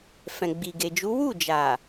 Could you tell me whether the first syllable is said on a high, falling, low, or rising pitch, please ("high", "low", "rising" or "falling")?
low